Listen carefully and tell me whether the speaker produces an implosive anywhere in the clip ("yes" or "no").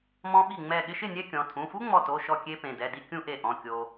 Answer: yes